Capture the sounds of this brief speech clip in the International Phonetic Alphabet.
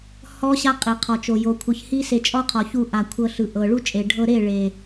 h ɔ˦ ɕ a˦ qʼ i˨ qʰ ɔ˨ t͡ʃ o˨ j o˨ kʷʰ ɯ˨ ç h i˦ s e˧ t͡ʃʼ ɔ˦ qʰ ɔ˨ ç u˧ ʔ a˨ kʷʰ ɤ˧ ɬ ɯ˨ ʔ ɤ˨ ɭ u˦ t͡ʃʼ e˨ ɖʱ ɤ˧ ɾ e˦˨ ɭ e˨

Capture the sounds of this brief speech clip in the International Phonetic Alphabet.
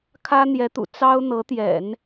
kʰ ä˥ n̪ j ɛ˧˥ t̪ ṵ˨˩ t͡s ɑ˥ ʊ̯ n̪ ɤ˧˥ t̪ j ɛ̰˨˩˦ n

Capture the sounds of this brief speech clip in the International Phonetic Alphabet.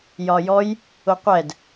j ɒ j ɔ j | ʊ qʷ ɛ d

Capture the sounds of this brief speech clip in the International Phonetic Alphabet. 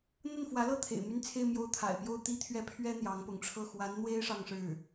n̪ ə˥˩ n f w ä˧˥ l ɤ˥˩ t̪ʰ ḛ˨˩ ɪ̯ m y˥˧ n t͡sʰ e˥˧ ɪ̯ m j o˥˩ ʊ̯ t̪ʰ a̰˨˩ ɪ̯ p j o˥˩ ʊ̯ t̪ i˥ t̪ʰ ɥ ɛ˥˩ pʰ ɥ ɛ˥ n̪ j ɑ˧˥ ŋ p ʊ˧˥ ŋ ʈ͡ʂʰ ɤ˥˩ x w a˧˥ n n̪ w e˥ ɪ̯ ʂ ɑ˥˧ ŋ ʂ ɻ̩˥˩

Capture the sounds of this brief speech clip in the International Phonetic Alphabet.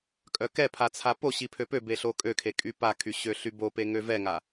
kʼ œ k ɛ pʰ a t͡sʰ a p o ɕ i pʰ ø p ø b e ɬ o kʼ ø kʰ e kʼ y p a kʰ y ɕ ø ɬ y b o p e ŋ ø v ɛ ŋ a

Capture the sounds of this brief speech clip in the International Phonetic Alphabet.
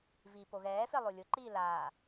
v iː p o ɣ ɛː f e lˠ o lʲ ʊ ǃ iː l aː

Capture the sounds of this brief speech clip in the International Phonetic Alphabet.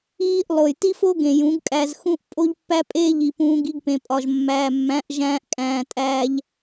iː˦ ʔ lˠ o˨ j t i˦ f o˦ ɡ ẽ˨ j ũ˨˦ ɡ kʼ æ˧ z x ũ˦ ʔ pʼ o˦ ʎ pː æ˦ pʼ eː˦ ʎ i˨ p ũː˧ ɡ i˧ ɡ p ẽ˨ pʼ ɒ˨ ʒ mː æː˨ mː æ̃˨˦ ʔ ʒ æ̃ː˧ ʔ kʼ æ̃ː˨ tʼ æː˧ ʎ

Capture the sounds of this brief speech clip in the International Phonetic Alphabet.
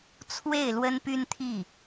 t͡sʰ w e˥˩ ɪ̯ l w ə˥ n p y˥ n t̪ʰ i˥˩

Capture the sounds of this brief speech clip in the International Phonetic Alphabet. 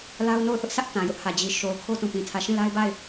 l a˦ ʊ̯ n o˦˨ ʊ̯ θ ʊ˦ ʔ s ä˦ ʔ t ã˨ j ʊ˦ ʔ h ä˨ d͡ʑ i˨ ʃ o˨ ʊ̯ kʰ o˦ t ũ˨ p ĩ˨ tʰ ä˨ ʃ ĩ˦˨ l a˦ ɪ̯ b a˦˨ ɪ̯

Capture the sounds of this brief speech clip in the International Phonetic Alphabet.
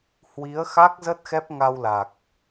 h w i˨˦ ə̯ x a˦˥ k̚ z ə˦˥ t̚ x ɛ˦˥ p̚ ŋ a˧ w l a˨˩ k̚

